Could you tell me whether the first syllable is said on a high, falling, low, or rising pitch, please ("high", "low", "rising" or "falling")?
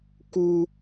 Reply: high